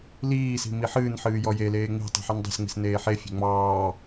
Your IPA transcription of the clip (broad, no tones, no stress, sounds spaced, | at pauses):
l iː s i̤ m i ħ ɨː n ħ ɨː j ɔ j e l eː ŋ͡m i̤ tˤ i̤ ħ ɨ n dˤ e̤ s ŋ͡m i̤ s n eː ħ e fʲ e̤ ŋ͡m ɑː